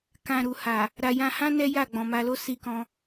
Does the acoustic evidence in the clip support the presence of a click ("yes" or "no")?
no